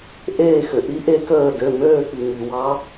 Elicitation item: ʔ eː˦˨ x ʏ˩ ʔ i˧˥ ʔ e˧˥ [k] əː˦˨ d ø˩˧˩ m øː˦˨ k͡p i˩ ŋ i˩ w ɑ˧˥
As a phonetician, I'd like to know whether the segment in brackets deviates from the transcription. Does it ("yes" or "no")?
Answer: no